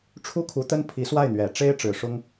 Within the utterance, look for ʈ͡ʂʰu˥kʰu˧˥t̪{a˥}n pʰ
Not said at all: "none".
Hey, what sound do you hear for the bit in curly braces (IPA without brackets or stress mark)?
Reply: ə˥